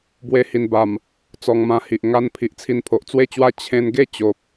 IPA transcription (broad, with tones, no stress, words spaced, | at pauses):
bwe˧hi˨˩nba˨˩m | t͡sɔ˧ŋmã˧hi˨ʔ ŋa˧n pʰi˨ʔt͡sʰi˧npʰo˨ʔ t͡swe˥˧t͡ɕwa˥˧ t͡ɕʰẽ˧nɡe˥˧ t͡ɕo˨p̚